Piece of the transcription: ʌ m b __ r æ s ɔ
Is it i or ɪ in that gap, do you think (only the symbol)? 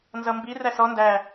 i